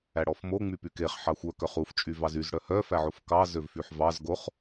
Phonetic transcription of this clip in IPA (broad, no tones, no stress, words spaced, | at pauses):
æɽɔfmo ŋ͡mypykeχ ħɑxʷœ kœχuf t͡ʃʼyvɑzyz ɽœhœ fæʕofkɑ zøvfyħvɑz ɡoχ